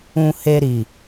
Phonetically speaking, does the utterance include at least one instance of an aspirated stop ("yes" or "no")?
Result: no